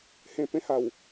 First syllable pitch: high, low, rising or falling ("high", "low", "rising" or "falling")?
low